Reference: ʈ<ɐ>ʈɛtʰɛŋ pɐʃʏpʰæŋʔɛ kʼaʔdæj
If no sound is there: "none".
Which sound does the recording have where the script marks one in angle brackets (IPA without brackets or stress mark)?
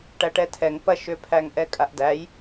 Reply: æ